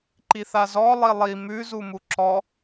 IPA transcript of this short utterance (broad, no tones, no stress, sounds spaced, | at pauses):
ǃ i θ a z ɔ lˠ i lˠ i m ʉ z u m u ǁ ɔ